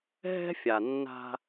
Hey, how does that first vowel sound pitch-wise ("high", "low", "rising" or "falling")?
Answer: high